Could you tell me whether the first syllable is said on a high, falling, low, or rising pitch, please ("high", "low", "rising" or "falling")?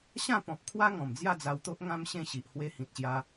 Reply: falling